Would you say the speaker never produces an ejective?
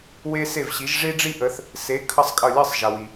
no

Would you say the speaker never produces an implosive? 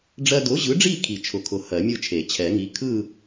yes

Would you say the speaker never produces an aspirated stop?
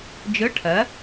no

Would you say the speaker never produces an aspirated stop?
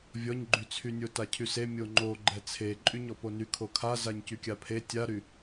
no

